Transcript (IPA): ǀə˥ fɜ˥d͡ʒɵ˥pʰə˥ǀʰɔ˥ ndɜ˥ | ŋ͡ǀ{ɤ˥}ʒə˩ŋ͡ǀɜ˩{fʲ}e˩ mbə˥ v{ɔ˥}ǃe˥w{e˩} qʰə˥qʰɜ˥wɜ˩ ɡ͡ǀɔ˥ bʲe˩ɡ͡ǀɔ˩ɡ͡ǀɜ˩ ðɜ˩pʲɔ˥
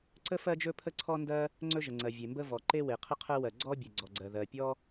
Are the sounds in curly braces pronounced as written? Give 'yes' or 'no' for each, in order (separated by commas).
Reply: no, no, no, yes